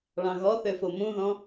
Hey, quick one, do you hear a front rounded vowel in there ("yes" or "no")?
yes